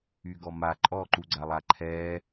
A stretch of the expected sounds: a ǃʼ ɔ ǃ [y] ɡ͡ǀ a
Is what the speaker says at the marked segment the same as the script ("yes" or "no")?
no